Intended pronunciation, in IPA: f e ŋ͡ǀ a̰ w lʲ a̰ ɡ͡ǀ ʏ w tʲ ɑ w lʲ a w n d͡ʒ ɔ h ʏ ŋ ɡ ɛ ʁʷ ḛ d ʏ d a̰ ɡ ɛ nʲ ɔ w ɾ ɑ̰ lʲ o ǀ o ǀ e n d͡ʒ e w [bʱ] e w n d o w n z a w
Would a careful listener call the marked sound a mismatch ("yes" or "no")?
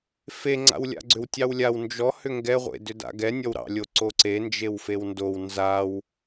yes